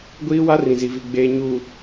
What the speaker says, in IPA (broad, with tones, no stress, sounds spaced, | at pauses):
ɡʷ iː˦ w a˦ r ĩ˨ z i˨ v i˨ ɡ͡b eː˨ ɲ uː˨